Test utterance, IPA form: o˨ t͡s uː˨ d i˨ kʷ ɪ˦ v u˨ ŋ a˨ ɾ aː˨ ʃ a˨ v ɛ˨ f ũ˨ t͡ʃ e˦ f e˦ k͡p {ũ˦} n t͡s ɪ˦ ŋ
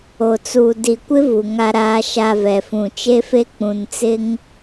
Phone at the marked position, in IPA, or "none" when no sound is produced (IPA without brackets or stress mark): ũ˨